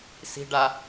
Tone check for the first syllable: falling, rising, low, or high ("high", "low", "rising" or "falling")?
high